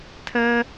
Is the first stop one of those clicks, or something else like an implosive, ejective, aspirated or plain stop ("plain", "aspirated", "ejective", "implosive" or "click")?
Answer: aspirated